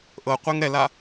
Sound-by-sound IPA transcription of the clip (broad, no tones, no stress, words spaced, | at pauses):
ʔɤqʷeŋ ɾɛla